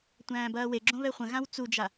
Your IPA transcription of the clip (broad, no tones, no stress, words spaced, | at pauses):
tʷæ̃ːbɐːweɡ͡ǁõ βɛχʷə̃ ɣãwt͡sud͡ʒa